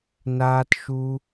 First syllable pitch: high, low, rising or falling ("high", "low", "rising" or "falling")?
high